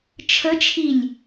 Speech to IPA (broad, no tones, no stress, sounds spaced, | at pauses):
t͡ʃʰ ə t͡ʃʰ i lʲ